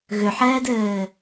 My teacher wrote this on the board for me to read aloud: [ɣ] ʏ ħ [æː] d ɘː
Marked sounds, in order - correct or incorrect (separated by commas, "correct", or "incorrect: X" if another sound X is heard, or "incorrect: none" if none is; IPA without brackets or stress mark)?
correct, incorrect: ɛː